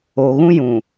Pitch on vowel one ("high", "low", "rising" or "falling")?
low